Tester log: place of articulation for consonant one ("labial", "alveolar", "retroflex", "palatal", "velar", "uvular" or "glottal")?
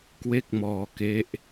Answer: velar